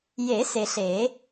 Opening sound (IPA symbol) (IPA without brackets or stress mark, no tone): j